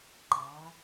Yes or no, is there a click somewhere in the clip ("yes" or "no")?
yes